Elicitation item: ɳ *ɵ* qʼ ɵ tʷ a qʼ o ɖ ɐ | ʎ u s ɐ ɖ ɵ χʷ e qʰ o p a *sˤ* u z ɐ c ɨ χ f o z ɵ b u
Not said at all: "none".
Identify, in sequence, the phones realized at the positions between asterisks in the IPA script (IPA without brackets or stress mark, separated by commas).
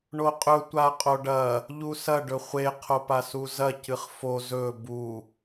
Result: o, s